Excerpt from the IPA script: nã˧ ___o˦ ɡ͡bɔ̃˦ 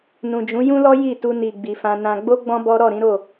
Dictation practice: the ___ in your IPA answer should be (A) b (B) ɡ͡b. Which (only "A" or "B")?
B